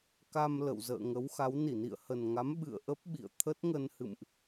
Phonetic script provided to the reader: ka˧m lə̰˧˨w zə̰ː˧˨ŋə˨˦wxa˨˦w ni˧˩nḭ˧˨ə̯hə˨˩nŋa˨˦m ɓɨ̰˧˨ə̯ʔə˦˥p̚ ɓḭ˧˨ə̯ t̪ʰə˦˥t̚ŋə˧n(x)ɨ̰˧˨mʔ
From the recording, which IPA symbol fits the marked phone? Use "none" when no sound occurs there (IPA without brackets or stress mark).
h